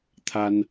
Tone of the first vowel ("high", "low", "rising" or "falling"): high